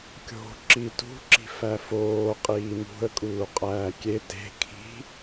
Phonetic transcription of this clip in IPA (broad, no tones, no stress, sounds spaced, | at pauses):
kʲ o̤ ǁ i t ṳ ǁ i̤ f æ f oː qʼ iː m ṳ ə̯ kʼ uː qʼ æː kʲ e t e̤ kʰ i̤